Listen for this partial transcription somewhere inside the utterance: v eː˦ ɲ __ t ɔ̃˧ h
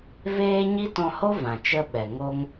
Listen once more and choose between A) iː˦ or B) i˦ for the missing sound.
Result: B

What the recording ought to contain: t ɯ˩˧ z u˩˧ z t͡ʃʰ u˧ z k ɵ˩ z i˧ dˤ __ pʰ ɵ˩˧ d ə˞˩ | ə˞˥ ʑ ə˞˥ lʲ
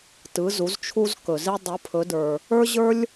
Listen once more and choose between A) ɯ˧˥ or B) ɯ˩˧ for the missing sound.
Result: B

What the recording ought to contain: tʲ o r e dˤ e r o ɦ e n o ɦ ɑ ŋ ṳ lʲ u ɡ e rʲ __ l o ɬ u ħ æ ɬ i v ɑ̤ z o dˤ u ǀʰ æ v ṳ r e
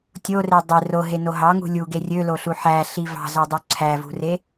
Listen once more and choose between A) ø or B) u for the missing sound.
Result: A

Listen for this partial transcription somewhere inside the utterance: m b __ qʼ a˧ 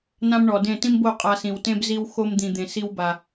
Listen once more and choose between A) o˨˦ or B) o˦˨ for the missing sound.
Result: B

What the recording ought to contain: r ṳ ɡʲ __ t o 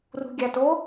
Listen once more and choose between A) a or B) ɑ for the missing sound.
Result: A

